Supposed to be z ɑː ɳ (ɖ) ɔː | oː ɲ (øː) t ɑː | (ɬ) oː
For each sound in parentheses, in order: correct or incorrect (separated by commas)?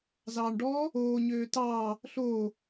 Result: correct, correct, correct